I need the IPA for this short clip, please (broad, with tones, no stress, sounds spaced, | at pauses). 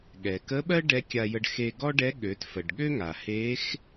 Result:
ɠ ɛ˩ k ə˧˥ ɓ ɜ˥ ɖ ɛ˧˥ kʲ a˧ j ə˧ ɖ x e˧ ɡ ɔ˥ ɖ ɛ˧˥ ɠ ø˩˧ t f ə˩ ɖ ɠ ø˥ ŋ a˩ h e˧˥ x